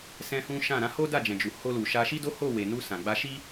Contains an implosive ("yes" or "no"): no